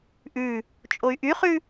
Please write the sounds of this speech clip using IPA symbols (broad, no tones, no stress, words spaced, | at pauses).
ʔʉ | t͡ʃʼoy̯ʔyχʉ